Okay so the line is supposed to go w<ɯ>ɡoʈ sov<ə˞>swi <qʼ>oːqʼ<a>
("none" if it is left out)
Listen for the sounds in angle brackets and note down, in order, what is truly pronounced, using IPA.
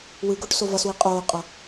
ɯ, ʌ, qʼ, ʌ

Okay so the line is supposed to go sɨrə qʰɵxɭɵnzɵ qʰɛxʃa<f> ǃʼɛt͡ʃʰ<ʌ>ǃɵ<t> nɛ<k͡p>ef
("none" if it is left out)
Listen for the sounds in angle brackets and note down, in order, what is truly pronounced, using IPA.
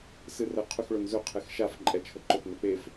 f, ə, t, k͡p

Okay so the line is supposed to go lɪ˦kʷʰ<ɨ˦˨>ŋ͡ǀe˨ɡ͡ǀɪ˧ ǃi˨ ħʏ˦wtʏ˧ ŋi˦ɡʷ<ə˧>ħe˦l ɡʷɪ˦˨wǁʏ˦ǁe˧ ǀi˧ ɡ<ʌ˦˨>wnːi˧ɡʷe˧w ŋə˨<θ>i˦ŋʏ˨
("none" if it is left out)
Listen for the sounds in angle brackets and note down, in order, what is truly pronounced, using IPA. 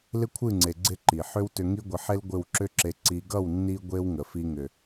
ɨ˦˨, ɪ˧, ʌ˦˨, f

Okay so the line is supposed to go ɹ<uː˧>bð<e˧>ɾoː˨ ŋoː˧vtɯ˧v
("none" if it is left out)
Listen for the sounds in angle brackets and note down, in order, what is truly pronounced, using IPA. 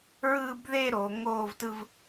ɯː˧, e˧

